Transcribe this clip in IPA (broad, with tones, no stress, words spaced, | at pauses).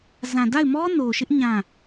zã˨da˦˨ɪ̯mɔ˦ no˨ʃɪ˦ʔ ɲã˦˨